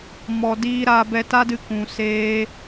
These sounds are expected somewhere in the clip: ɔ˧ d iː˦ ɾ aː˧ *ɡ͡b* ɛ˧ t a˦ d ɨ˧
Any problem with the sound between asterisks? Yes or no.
yes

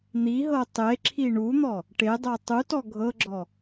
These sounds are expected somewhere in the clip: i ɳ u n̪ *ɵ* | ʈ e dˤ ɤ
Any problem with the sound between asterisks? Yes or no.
yes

